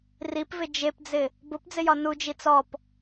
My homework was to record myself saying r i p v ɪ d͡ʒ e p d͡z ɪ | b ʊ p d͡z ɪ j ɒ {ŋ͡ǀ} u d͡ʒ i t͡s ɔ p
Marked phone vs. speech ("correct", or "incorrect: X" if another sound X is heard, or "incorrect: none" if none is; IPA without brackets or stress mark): incorrect: n